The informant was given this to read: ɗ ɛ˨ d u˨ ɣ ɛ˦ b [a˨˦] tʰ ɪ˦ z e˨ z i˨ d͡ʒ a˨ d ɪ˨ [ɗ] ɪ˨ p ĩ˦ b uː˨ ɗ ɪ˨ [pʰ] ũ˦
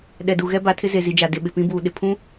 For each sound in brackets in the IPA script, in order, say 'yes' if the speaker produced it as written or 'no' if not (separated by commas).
yes, no, yes